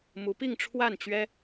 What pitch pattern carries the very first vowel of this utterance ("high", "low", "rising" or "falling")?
rising